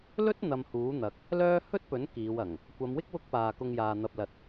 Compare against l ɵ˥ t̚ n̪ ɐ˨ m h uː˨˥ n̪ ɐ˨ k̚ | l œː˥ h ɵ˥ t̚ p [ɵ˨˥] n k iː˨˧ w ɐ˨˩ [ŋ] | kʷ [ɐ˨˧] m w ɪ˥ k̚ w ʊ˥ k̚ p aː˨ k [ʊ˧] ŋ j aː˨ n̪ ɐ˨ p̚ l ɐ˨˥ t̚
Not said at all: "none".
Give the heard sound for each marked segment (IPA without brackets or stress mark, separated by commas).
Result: ɵ˨˥, ŋ, ɐ˨˧, ʊ˧